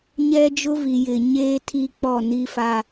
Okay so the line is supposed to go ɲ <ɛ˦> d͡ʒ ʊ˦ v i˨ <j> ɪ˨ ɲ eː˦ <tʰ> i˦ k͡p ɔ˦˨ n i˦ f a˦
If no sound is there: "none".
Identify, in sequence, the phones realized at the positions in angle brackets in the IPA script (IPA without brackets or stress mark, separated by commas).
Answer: ɛ˦, j, tʰ